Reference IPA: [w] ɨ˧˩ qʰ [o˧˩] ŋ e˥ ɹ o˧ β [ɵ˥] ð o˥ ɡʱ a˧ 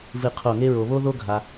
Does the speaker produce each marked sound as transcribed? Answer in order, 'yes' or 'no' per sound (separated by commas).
no, yes, no